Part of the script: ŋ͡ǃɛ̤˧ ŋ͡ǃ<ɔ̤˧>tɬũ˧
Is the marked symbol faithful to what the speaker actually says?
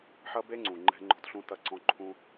yes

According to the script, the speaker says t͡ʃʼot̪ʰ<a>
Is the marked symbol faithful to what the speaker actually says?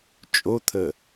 no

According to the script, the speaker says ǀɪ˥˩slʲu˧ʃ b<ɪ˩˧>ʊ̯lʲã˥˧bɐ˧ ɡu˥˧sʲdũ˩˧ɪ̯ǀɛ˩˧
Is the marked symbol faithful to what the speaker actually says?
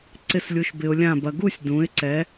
no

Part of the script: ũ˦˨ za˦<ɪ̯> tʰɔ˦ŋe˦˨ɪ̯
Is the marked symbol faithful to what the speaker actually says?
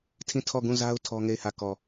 no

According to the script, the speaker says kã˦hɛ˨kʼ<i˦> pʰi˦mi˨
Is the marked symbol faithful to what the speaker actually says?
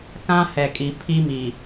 no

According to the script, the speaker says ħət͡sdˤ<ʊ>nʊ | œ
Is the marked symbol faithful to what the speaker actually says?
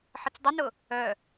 yes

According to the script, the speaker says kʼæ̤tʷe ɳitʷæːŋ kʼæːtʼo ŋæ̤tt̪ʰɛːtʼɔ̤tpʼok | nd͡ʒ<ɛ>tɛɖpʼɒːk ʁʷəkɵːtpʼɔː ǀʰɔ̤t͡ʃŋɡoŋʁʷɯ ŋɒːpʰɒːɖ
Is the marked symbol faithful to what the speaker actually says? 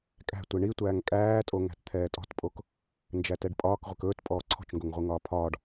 no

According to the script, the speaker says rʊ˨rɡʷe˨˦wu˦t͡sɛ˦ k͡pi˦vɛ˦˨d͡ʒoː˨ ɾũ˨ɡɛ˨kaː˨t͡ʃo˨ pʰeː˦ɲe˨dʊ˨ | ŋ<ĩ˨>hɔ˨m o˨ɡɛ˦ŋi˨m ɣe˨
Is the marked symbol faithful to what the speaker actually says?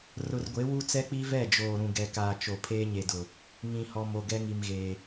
yes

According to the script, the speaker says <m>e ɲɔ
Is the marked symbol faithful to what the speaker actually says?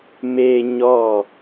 yes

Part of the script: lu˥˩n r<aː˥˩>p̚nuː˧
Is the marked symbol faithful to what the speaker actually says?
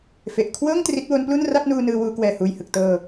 no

